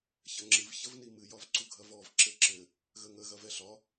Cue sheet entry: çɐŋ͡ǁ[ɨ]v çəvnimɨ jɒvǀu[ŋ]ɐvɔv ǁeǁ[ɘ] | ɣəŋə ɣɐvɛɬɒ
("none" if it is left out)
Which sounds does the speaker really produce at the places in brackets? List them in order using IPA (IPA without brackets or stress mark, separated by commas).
ɨ, ɡʱ, ɘ